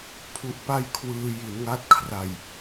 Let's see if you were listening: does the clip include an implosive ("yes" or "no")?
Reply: no